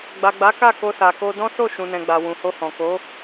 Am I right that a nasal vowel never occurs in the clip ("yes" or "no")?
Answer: no